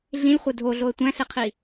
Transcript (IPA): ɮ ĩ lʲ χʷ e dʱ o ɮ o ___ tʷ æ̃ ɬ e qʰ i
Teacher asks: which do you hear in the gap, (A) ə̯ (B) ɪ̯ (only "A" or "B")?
A